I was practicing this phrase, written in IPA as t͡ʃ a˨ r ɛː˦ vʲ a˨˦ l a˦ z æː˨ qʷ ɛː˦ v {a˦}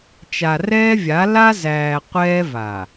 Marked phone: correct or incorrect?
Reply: incorrect